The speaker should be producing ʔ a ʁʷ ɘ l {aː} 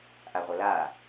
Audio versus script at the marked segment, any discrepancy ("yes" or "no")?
no